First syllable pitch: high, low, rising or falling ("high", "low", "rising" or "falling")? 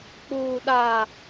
low